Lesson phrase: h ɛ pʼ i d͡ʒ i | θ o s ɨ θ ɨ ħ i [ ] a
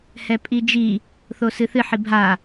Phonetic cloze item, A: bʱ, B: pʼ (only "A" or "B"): A